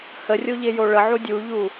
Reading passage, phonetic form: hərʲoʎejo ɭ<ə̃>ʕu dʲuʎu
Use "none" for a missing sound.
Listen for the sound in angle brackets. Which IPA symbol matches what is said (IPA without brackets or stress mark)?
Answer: ə